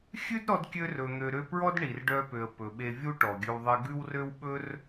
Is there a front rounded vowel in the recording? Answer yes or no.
yes